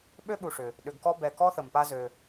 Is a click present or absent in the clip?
absent